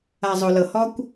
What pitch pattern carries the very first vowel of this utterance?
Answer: low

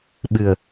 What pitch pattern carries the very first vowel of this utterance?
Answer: low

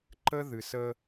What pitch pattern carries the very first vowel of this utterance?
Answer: high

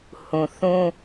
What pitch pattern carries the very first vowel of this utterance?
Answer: low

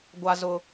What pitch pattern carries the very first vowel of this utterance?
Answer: high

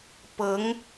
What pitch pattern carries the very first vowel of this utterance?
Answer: rising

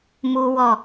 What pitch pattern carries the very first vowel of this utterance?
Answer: high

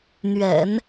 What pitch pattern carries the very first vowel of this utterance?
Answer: low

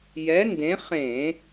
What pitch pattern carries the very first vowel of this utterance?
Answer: rising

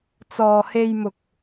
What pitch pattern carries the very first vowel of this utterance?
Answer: low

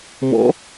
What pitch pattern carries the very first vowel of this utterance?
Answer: rising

